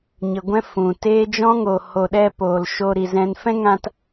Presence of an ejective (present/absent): absent